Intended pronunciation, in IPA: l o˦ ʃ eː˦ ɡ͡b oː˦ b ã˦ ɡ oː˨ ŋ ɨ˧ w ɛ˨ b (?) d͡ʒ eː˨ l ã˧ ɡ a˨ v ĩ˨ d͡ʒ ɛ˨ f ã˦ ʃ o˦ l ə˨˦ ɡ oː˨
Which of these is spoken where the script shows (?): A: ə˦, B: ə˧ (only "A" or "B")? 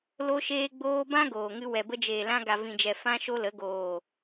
B